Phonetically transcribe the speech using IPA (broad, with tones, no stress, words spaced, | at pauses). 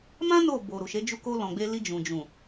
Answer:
mã˦ no˦˨bo˨ɾu˨ʃe˨˦ d͡ʒu˧ko˧lɔ̃˨ɡ͡be˧ li˧d͡ʒũ˨ d͡ʒũ˨